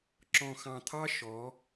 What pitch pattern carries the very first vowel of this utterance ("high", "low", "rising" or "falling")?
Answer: low